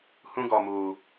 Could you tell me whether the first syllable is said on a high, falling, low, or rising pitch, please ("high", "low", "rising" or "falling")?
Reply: high